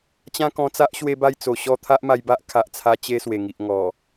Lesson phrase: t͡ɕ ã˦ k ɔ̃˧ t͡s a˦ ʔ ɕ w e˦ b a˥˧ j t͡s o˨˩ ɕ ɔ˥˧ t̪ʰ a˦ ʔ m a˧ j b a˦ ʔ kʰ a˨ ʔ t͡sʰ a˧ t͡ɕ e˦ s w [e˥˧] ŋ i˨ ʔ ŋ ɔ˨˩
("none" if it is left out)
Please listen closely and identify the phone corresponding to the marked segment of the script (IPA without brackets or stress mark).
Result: e˨˩